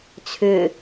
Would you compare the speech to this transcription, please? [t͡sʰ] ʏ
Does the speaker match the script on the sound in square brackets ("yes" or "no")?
yes